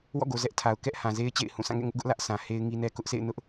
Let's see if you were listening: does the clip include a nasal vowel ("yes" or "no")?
yes